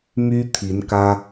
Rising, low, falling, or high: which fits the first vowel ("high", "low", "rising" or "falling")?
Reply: high